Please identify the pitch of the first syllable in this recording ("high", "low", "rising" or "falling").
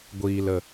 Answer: low